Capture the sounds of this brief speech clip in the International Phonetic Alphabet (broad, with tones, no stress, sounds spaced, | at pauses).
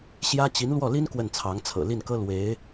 ɕ j ä˥ t͡ɕ i˧˥ n l w ɔ˥˩ l i˥ n k w ə˥˩ n t͡sʰ ɑ˧˥ ŋ t͡sʰ ɤ̰˨˩ l i˥˩ n k ɤ˥ l w e˧˥ ɪ̯